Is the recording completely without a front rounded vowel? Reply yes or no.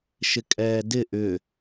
no